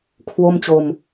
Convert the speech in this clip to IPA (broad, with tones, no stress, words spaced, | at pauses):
kʰwo˥˩mt͡ɕo˧m